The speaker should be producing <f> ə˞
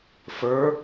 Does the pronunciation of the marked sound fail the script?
no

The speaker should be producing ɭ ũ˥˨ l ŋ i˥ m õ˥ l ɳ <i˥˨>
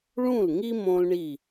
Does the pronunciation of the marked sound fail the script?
no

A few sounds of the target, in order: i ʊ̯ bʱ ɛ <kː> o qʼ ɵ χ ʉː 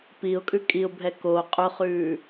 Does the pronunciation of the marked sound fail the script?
yes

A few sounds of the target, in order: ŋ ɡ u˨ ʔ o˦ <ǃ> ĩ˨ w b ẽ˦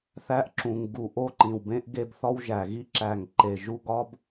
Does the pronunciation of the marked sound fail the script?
no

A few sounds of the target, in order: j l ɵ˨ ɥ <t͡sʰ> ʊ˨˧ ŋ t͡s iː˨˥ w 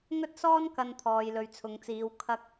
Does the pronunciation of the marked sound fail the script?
no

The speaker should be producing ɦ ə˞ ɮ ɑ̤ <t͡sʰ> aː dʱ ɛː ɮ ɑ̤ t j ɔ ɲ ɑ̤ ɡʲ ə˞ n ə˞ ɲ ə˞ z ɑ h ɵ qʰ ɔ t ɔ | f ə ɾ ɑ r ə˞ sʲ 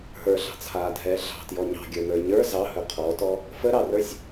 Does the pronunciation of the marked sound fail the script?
no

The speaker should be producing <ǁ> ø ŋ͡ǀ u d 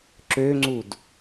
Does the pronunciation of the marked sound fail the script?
no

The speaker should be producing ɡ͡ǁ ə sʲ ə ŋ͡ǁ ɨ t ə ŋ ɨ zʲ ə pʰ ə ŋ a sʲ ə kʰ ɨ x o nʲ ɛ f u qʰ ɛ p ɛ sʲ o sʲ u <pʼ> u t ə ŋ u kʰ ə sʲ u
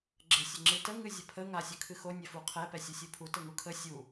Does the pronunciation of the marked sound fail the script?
yes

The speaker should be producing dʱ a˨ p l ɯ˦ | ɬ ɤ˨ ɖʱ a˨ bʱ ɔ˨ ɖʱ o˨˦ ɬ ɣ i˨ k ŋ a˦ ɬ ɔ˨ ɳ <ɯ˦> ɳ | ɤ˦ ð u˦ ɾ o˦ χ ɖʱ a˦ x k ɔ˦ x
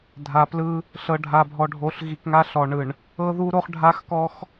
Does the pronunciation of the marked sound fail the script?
yes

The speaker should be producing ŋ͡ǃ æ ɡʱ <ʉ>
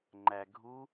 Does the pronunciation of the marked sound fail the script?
yes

